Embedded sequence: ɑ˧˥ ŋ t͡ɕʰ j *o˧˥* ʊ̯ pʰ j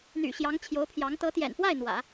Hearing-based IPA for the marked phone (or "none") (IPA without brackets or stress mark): o˧˥